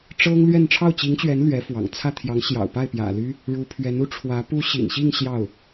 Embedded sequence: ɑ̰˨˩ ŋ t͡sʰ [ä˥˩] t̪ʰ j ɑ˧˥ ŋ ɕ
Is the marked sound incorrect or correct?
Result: correct